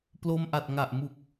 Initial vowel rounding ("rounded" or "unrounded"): rounded